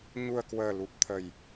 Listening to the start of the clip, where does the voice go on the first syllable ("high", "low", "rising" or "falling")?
low